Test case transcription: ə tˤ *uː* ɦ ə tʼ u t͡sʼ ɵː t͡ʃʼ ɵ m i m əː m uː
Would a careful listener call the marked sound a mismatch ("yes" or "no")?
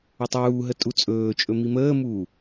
no